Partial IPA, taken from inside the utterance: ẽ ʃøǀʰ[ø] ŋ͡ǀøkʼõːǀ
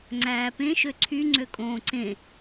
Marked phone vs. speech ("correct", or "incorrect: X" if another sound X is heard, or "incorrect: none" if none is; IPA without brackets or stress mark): incorrect: y